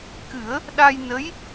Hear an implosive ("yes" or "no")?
yes